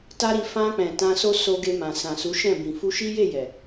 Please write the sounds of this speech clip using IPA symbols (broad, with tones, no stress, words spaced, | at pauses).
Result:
ta˦ɾi˧ fã˧k͡pɛ̃˨ tã˧so˦ so˧ɡe˧mã˨ sã˨su˨˦ʃɛ̃˦˨bĩ˨ fu˧ʃi˦ je˦˨jɛ˨